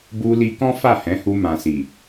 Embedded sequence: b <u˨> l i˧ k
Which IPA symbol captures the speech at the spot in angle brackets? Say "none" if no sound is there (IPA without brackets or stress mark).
u˧